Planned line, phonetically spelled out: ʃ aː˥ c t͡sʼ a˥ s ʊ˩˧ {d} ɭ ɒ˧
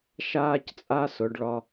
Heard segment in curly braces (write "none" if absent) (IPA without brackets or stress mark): ɖ